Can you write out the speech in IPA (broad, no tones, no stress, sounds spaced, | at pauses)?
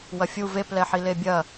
w ɐ fʲ u v e p l ɛ ħ i l e bʲ ɐ